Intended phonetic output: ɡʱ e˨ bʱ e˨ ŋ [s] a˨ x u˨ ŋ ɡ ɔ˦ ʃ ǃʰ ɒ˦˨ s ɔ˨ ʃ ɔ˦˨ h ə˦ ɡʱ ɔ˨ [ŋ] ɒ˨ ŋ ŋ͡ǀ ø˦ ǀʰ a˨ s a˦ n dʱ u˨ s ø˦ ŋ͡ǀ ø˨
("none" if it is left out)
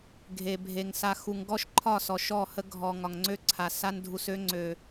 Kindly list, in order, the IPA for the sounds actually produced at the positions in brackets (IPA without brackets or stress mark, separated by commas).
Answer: s, ŋ